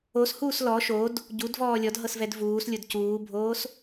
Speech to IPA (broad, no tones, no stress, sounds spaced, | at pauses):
o s h uː s l ɔ ʃ o d | ɟ u d v ɔː lʲ ɔ d ɦ ɤ s v ɛ d v uː s lʲ o d c uː bʱ oː s